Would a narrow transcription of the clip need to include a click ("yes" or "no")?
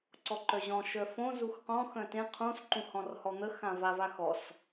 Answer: yes